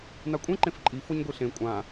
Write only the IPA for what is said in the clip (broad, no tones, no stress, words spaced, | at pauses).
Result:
n̪akʷʼẽ ǃẽfǃʼi foɲɡʷiɬẽ kʷʼã